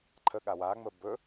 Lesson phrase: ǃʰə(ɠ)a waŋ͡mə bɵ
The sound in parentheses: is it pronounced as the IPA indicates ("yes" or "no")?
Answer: yes